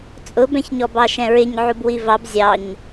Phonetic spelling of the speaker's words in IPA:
t͡sʼ ʊ b ɛ̃ ç ɲ ɔ b ɑ ʃ ɛ̃ ɹ ɪ ɲ ʕ u b w i v ɑ b zʲ ɑ ɲ

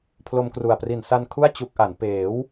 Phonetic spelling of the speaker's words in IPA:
pʰ l o˧ m k r u˨˩ a̯ p r i˨˩ n s a˧ n kʰ u˥˩ a̯ t͡ɕ u˦˥ k̚ ʔ a˩˦ n p eː˩˦ w

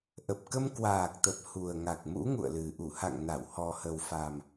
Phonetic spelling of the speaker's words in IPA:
ʔ ə˨˩ p̚ k ə˧ m k w aː˨˩ k̚ t̪ ə˨˩ p̚ h u˨˩ ə̯ ŋ a˨˩ k̚ m ṵ˧˥ ŋ ṵ˧˨ ə̯ l ɨ˨˩ ʔ u˧˩ h a̰˧˨ ŋ n a˧˩ w h ɔ˨˩ h ə˨˩ w f a˨˩ m

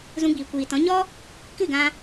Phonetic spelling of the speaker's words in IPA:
z ũ˧ ɡ͡b iː˨ kʷ iː˨ t ɔ̃˨˦ ɲ ɔ˦ | k ɨ˦˨ ɡ ã˧

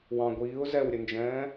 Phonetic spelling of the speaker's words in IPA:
w ɑ̃ ɡʷ iː ʊ̯ z ɛ w ɾʲ ə n d͡ʒ ɛ̃ː

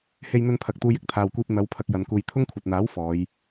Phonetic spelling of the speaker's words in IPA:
h e˧ j n̪ ɵ˧ n pʰ ɐ˨ k̚ t̪ uː˧ j ɪ˧ k̚ t̪ʰ aː˨ w kʷ iː˧ p̚ n̪ ɐ˨˧ w pʰ ɐ˧ k̚ j ɐ˨˧ n k uː˧ j t̪ʰ ʊ˥ ŋ kʷʰ ɐ˨ t̚ n̪ aː˨˥ w f ɔː˨˧ j

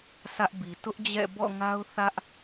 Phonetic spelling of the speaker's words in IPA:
s ä˦ ʔ b i˨ t ʊ˦ ʔ d͡ʑ ɛ̰˦˨ b ɔ̰˦˨ ŋ a˦ ʊ̯ θ ä˦ ʔ

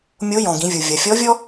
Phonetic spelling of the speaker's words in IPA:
mʲ o˧˥ j ɔ̃˩ ɡ ĩ˩˧ vʲ u˩ vʲ ɐ˩ fʲ ɔ˧˥ vʲ ɔ˥

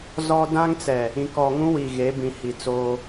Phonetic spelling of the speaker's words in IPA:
z ɔ˦ d ã˦ ŋ t͡s ɛ˨ | ĩ˨ k ɔ˨ ŋ ũ˦ w i˨ ɣ e˨˦ b ĩ˨ h i˨ t͡s oː˦

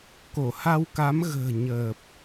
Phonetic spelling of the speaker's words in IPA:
k o˧˩ h a˧ w k a˨˦ m ɣ ə̤ː˨˩ ɲ əː˨˩ p̚

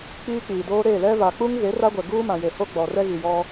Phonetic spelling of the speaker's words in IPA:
k͡p iː˦ k͡p iː˨ d oː˦ ɾ e˦˨ l ɛ˦ v a˨ k͡p u˦ ŋ ɣ e˨˦ r a˦ ɡʷ ɛ˨ ɡ uː˦ m ã˨ j e˨ h o˦ ɡ͡b ɔ˨ r ɛ˦ ɣ i˨ j ɔ˦

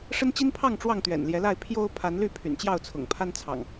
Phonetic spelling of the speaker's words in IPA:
ʂ ə˦ n t͡ɕ i˦ n pʰ ɑ˥˨ ŋ ʈ͡ʂ w ɑ˥˨ ŋ t̪ ɥ ɛ̰˨˩ n l j ɛ˨˦ l a˥˨ ɪ̯ pʰ j o˦ ʊ̯ pʰ a˨˦ n l y˥˨ pʰ y̰˨˩ n t͡ɕ j ɑ˥˨ ʊ̯ t͡sʰ ʊ̰˨˩ ŋ pʰ a˦ n t͡sʰ ɑ̰˨˩ ŋ

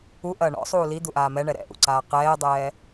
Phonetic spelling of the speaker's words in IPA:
u ʔ ɐː ɳ ɔ̰ sˤ uː l i d̪ u ʔ aː m ɛ ɳ ɛ ɾ ɛ̰ ʔ ṵ ǀ aː q ɛː dˤ ɛː

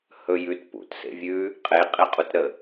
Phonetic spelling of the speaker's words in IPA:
h ɵ j ʉ t p ṵ t s ḛ vʲ ʉ | qʼ e qʼ e qʼ u t ɾ ə

